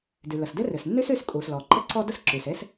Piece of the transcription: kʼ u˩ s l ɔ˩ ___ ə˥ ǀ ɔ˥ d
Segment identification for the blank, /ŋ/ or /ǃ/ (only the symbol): ǃ